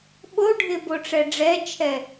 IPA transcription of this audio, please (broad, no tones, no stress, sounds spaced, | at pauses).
ɓ o ɖʱ ɪ b o ʈ͡ʂ ɛ ɖ͡ʐ ɛ t͡ʃʰ ɛ